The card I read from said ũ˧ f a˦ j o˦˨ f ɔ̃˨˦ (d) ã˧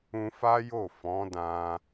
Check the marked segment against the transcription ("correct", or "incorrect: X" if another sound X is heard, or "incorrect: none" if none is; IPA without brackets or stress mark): correct